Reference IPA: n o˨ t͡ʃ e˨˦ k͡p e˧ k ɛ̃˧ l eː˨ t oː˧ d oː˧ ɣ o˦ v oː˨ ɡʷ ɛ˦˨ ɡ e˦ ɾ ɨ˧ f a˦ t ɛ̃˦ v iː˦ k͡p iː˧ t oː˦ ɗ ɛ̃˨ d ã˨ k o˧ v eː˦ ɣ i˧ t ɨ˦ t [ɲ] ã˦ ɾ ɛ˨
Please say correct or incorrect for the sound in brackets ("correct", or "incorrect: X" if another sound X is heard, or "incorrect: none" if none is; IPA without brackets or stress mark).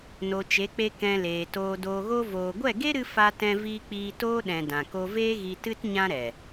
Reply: correct